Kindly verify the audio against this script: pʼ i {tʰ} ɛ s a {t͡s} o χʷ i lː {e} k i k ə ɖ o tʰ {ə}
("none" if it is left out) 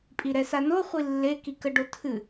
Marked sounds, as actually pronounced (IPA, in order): ɾ, n, e, ɨ

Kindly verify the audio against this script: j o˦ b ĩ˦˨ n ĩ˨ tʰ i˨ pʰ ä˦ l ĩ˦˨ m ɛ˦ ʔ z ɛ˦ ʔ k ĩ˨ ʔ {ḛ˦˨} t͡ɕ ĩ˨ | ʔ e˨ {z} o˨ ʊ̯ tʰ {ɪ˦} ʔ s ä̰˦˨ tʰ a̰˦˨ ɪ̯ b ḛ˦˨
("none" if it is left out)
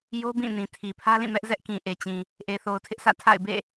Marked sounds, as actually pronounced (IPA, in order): e˨, θ, ɪ˦

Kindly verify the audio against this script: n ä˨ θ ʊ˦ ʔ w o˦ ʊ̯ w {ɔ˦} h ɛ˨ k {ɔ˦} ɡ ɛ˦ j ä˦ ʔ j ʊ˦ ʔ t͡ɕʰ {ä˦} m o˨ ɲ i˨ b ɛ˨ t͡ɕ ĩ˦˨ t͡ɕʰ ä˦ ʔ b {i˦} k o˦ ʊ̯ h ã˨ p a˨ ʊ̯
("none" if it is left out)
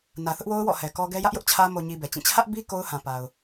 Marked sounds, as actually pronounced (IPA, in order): ɔ̰˦˨, ɔ˦, ä˦, i˦

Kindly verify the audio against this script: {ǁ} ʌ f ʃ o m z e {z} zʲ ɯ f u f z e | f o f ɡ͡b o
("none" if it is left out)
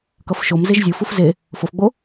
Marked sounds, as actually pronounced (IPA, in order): k, ʒ

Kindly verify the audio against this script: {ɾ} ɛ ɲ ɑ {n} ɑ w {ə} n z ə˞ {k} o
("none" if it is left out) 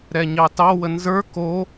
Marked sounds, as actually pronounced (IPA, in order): ɾ, t, ə, k

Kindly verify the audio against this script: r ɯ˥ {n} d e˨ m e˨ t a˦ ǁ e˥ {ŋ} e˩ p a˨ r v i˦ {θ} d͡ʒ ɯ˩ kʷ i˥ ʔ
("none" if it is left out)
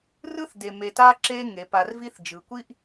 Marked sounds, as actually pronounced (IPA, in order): θ, ŋ, θ

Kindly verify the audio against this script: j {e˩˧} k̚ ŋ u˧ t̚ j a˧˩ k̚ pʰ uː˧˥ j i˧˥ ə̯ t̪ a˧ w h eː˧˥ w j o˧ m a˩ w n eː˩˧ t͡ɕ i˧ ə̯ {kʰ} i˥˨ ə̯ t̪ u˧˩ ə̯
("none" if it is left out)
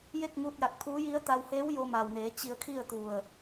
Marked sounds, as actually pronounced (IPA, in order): e˥˨, kʰ

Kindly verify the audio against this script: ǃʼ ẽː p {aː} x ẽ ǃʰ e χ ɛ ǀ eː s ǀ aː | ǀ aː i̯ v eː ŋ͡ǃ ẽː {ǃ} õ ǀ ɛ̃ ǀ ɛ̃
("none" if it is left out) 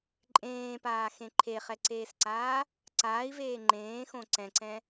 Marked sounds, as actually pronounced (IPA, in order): aː, x

